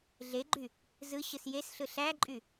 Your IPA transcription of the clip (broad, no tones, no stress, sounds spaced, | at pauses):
ɮ e ɡ͡ǃ y | z ɯ ɕ ɯ s j e s ɬ ɯ ɬ æ ǃʼ y